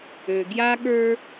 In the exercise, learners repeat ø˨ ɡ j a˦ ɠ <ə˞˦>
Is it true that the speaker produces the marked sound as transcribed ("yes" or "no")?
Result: yes